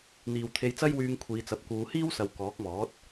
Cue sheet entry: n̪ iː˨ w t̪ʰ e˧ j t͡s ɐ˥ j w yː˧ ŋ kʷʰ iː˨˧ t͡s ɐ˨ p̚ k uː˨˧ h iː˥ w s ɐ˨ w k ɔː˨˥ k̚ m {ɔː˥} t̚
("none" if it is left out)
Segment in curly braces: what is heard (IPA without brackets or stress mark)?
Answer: ɔː˨˥